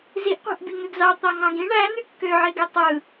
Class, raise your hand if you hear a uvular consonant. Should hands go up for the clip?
yes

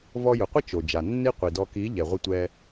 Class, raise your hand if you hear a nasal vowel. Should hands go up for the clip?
no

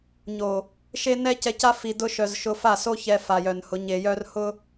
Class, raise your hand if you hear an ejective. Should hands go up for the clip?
no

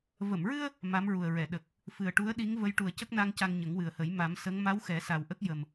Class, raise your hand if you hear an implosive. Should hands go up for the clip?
yes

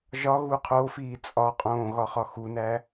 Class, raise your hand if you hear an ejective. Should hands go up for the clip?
yes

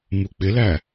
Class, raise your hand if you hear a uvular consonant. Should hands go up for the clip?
no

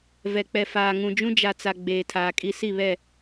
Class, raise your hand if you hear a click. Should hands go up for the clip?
no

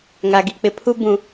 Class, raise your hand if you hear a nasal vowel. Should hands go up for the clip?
yes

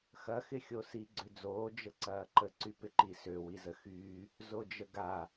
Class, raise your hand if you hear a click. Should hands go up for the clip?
yes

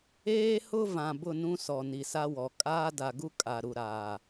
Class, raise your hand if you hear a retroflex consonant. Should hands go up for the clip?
no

